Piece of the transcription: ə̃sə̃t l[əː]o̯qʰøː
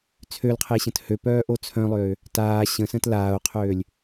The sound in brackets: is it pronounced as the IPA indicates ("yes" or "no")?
no